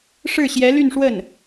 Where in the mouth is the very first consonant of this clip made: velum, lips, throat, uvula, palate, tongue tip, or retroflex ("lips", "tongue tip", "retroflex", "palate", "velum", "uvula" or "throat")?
retroflex